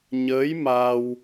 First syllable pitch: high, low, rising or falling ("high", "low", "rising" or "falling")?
rising